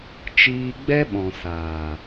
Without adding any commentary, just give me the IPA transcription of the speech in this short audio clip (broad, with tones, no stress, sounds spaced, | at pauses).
t͡ʃ iː˧ ɡ͡b ɛ˦ ɓ ɔ̃˨ s aː˨